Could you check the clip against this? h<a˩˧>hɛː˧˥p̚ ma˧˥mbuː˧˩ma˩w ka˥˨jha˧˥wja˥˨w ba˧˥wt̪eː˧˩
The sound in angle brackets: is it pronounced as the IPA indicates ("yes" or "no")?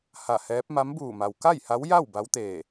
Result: no